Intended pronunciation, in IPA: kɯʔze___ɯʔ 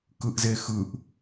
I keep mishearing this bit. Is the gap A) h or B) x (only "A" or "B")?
B